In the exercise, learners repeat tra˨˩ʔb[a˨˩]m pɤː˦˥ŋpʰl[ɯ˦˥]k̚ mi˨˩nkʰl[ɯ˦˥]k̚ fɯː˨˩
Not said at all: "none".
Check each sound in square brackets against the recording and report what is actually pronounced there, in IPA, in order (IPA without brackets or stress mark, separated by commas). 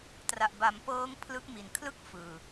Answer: a˩˦, ɯ˦˥, ɯ˥˩